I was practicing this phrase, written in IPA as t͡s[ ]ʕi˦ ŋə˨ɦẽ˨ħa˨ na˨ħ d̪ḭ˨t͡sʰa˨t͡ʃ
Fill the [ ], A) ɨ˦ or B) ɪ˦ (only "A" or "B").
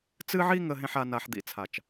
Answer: A